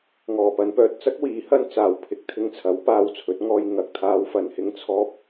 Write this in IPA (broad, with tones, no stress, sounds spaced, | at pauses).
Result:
ŋ ɔː˨˩ p ɐ˨˧ n p œː˨ t̚ t͡s ɐ˥ k̚ w iː˨˥ h ɐ˥ n t͡s aː˨ w pʰ ɪ˨˥ k̚ t̪ʰ ɪ˧ ŋ t͡sʰ ɐ˨˥ w p aː˧ w t͡sʰ ɵ˨˥ t̚ ŋ ɔː˥ j ŋ ɐ˧ k̚ t̪ʰ aː˥ w f ɐ˧ n h ɪ˥ ŋ t͡sʰ ɔː˥ p̚